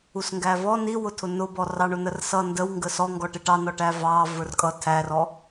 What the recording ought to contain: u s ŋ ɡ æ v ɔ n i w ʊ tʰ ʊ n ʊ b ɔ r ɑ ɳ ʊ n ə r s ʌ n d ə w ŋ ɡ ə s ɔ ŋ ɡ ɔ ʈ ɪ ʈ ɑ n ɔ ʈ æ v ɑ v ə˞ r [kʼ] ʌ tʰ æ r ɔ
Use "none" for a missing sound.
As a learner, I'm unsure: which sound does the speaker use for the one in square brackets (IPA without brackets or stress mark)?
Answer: kʼ